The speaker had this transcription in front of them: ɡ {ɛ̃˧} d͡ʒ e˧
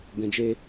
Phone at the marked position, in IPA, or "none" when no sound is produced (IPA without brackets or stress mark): ɛ̃˧